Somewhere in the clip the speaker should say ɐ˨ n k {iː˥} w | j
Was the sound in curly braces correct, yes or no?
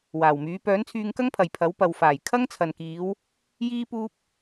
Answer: no